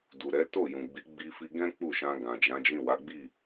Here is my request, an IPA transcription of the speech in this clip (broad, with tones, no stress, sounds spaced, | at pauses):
d u˨ ɾ ɛ˨˦ t o˦˨ j ũ˨ ɡ͡b i˨˦ ɡ͡b i˧ f i˧ ɡ ɛ̃˦ k͡p u˦˨ ʃ ã˧ ɡ ã˨ d͡ʒ ã˨˦ d͡ʒ ĩ˦˨ w a˨˦ ɡ͡b i˦˨